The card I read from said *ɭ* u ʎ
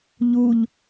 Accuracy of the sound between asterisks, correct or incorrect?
incorrect